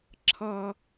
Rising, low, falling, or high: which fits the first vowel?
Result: high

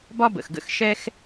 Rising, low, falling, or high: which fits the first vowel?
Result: high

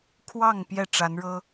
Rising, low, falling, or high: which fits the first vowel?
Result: falling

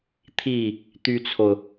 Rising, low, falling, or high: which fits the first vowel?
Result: falling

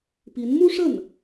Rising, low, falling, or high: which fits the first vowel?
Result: rising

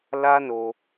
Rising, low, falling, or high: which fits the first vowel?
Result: high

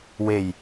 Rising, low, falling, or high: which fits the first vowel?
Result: low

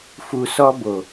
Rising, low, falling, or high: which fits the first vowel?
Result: low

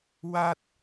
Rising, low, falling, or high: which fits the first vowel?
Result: high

